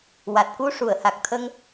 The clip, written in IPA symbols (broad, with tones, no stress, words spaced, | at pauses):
wa˨˩t̚ku˧ ʂu˨˩˨ə̯ha˨˩k̚t̪ʰə˧ŋ